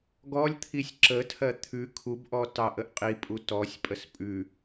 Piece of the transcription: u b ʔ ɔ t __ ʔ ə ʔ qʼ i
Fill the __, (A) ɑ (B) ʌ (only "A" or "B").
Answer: A